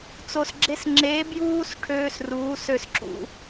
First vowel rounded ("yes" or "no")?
yes